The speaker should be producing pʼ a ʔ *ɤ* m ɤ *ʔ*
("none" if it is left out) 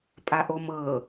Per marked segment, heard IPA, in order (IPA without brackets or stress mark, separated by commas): o, none